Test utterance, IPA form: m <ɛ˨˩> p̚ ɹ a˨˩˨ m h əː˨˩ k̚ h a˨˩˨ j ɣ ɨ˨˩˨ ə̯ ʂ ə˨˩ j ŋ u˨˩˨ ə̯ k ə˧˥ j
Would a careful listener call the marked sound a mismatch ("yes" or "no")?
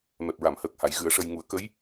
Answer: no